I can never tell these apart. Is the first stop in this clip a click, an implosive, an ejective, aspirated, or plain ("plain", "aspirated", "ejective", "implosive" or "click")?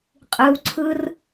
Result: ejective